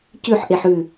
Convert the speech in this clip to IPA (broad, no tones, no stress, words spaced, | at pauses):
cʉħʔeħ ʉ